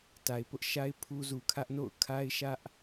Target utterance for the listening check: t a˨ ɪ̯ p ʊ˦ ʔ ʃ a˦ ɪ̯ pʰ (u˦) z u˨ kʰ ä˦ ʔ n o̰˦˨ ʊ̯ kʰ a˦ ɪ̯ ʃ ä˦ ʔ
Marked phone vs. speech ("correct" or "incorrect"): correct